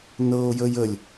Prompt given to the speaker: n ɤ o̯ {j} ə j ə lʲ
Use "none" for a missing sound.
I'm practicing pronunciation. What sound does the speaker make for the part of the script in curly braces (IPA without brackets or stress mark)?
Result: j